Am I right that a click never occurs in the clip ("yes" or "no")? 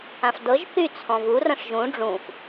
yes